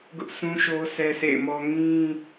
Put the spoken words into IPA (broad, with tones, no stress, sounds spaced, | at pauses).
ɡ ʊ˦ ʔ s ũ˦ ʃ o˦ s ɛ˦ sʰ ḛ˦˨ ɪ̯ m ɔ˦ ŋ ĩ˦